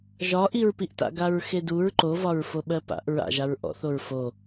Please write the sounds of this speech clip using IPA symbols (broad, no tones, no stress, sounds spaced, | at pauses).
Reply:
ʒ ɒ ʔ i ɹ p i ʔ t a̰ ɡ a ɹ x e d u ɹ ǃ o v ɒ ɹ f o ɓ ɜ p a̰ ʔ ɹ a̰ ʒ a ɹ ʔ ɔ̰ θ o ɹ f o